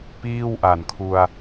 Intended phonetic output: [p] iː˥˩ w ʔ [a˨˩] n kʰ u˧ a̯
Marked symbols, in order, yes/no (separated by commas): yes, yes